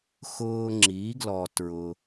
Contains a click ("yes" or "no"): yes